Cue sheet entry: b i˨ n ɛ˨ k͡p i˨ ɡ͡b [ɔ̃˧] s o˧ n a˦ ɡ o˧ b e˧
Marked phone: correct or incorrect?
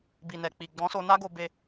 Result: incorrect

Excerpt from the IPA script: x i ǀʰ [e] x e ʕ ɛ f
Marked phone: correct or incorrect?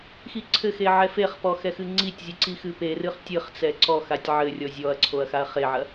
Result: incorrect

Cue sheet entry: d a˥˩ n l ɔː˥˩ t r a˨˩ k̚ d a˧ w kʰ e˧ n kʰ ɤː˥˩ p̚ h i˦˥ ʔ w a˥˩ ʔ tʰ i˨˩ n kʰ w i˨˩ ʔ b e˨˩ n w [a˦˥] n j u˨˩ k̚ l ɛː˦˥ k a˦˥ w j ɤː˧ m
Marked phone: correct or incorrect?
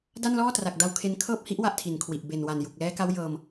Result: incorrect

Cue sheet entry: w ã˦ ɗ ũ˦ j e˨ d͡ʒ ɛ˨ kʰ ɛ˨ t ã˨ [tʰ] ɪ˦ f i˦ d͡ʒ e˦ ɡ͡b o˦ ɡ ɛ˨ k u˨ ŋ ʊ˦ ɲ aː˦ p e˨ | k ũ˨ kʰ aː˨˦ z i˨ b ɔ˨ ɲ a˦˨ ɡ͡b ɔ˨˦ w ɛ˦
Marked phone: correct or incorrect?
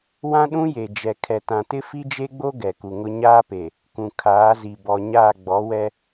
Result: incorrect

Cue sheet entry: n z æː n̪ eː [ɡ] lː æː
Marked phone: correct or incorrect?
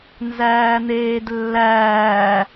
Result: incorrect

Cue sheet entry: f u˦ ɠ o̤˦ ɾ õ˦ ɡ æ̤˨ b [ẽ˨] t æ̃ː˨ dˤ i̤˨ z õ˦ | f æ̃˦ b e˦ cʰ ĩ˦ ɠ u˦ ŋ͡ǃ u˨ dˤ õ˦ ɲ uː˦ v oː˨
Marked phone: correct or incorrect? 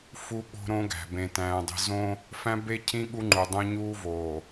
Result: correct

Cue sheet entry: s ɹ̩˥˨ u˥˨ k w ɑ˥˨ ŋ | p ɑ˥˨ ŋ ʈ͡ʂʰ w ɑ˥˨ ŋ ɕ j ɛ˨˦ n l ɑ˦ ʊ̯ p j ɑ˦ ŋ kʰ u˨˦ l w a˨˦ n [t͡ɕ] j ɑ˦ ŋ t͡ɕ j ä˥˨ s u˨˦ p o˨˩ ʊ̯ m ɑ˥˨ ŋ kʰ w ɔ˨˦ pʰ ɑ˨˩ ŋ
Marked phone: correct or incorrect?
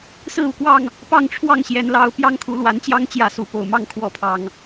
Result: correct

